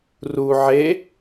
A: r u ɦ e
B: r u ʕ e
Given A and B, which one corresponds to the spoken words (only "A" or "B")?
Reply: B